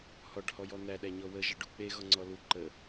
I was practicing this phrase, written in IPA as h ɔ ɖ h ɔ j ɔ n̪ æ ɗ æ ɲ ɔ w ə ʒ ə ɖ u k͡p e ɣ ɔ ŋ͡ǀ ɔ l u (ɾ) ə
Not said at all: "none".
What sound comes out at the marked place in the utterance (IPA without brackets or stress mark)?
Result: ǃ